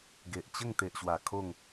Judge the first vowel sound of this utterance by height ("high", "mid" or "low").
mid